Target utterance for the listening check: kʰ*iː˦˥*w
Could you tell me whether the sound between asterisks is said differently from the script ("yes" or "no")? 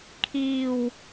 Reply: yes